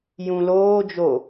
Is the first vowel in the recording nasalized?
yes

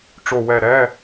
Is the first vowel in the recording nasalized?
no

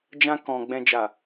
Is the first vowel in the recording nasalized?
yes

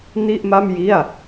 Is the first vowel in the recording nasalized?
no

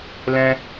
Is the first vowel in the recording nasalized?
yes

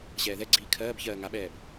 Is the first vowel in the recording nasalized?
no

